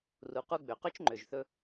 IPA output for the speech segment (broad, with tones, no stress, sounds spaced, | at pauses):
r u˩˧ q u˧ ɡ͡b ø˩ q ø˥ t͡ʃ ŋ͡ǃ ø˩ ʒ θ ɵ˧